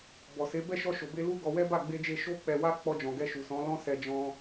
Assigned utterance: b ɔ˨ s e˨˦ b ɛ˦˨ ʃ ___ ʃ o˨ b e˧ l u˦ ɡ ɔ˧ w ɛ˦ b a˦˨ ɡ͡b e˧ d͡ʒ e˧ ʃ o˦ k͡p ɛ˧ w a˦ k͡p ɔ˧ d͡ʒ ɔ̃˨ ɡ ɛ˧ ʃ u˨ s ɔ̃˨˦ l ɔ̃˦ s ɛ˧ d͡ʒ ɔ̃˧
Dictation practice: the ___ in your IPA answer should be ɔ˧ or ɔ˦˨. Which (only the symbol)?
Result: ɔ˧